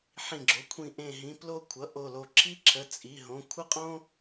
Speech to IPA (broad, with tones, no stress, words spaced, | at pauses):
ħĩ˧˩ɡ͡ǁo˩˧˩kʷʰĩ˧˩ ʔẽ˧˩ɦĩ˩˧˩ plo˥kʷʰʌ˩˧˩ʔo˧˩lo˧˩ ǁʰi˥ǁʰə˩˧˩t͡sʼi˩˧˩ɦõ˩˧˩ kʷʰə˥qʼõ˥